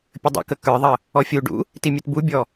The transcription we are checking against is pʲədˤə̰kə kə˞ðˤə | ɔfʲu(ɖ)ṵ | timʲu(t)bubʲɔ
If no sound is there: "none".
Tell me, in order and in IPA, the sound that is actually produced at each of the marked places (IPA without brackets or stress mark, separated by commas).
ɖ, t